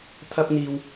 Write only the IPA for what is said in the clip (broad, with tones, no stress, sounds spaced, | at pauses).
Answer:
t̪ʰ ɐ˥ p̚ n̪ iː˧ w